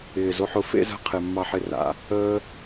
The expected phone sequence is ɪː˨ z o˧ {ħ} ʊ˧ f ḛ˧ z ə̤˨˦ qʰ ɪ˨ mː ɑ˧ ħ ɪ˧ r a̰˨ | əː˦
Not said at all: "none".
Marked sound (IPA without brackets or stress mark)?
ħ